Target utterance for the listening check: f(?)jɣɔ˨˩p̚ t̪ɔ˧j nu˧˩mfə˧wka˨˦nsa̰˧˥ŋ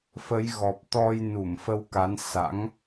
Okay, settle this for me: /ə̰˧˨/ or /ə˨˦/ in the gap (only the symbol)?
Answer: ə˨˦